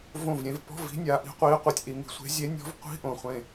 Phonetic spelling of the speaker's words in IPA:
võ˧˩vɾʲẽ˩˧v pɔ̤˧˥˧v i̤˨˥nʲa˩˧ ʔi̤˨˥qʷiː˨˥qʷɯ˩˧tʲʔi˩˧ ŋi̤˩˧sʷe̤˨˥ zʲe˨˥nʲɔ̤˨˥v qʷi̤˧˥˧ʔõ˧˩χʷẽ˧˩

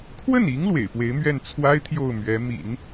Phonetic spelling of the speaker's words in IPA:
kʰwə˥˩ni˧˥ŋ lwḛ˨˩ɪ̯pwe˧˥ɪ̯mɥɛ˥˩n t͡sʰwa˥ɪ̯ t̪ʰjo˥˩ʊ̯ mɥɛ˧˥ mḭ˨˩˦n

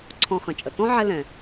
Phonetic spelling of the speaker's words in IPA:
ǀʰɔ̃˨χə̃˩t͡ʃʼə˩ tɔ̃˦ ʕɛ˦ lɛ̃˩

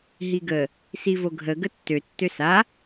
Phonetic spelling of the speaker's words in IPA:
ɦiɡə | sivoɡʱə ɡətːø tːøsa

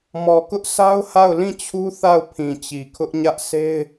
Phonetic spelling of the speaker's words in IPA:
mɔ˨kʊ˦ʔ sa˦ʊ̯ ha˦˨ʊ̯lĩ˦˨t͡ɕʰu˦ θa˦˨ʊ̯ pʰĩ˨t͡ɕi˨kʰʊ˦ʔ ɲä˦ʔ se˦ɪ̯

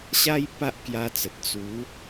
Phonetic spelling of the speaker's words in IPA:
ɕa˦j pa˦ʔkja˧t͡sə˨t̚ t͡su˨˦

